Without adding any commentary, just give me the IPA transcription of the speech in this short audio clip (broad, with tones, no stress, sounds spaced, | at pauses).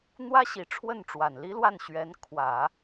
n̪ w ä˥ ɕ i˨˩ ʈ͡ʂʰ w ə˥˩ n ʈ͡ʂ w a˨˩ n l i˥ l w a˥˩ n ɕ ɥ ɛ˧˥ n kʰ w ä˨˩˦